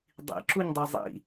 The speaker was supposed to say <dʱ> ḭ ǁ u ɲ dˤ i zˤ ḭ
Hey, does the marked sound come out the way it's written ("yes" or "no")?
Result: no